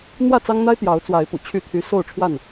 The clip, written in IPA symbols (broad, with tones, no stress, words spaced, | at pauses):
n̪wä˥˨t͡sɑ˦ŋn̪a˦ɪ̯ t̪jɑ˨˦ʊ̯t͡swa˨˦ɪ̯pṵ˨˩ t͡ɕʰy˥˨t̪ʰy˦ so˥˨ʊ̯ʈ͡ʂʰwa˥˨n